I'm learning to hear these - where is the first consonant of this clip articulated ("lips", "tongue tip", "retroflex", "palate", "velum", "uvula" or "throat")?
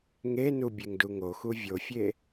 velum